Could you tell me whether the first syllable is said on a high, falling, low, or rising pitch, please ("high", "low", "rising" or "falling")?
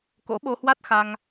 rising